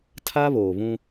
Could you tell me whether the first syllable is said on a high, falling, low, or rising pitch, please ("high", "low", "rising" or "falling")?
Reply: high